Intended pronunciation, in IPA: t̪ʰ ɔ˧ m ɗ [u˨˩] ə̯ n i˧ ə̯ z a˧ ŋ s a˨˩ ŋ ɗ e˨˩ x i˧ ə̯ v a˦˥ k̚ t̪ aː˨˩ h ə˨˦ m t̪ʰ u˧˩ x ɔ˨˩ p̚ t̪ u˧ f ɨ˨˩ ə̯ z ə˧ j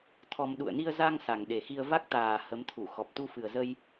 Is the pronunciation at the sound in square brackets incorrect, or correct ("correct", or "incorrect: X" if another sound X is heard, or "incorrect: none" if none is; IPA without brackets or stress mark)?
incorrect: ṵ˧˨